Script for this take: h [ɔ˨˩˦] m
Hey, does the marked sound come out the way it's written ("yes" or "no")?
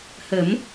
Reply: no